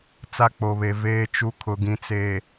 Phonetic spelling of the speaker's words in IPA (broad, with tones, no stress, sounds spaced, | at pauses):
t͡s a˦ k͡p o˨ β e˨ v eː˦ t͡ʃ u˦ kʰ ʊ˨ ɡ ĩ˨ t͡s e˨